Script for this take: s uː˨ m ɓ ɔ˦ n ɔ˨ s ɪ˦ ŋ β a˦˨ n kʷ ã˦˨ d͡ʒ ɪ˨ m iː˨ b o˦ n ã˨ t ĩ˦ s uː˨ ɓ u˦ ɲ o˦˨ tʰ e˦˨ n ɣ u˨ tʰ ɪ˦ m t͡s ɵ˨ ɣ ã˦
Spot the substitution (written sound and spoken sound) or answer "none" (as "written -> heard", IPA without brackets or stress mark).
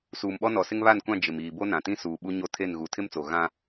ɵ˨ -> o˨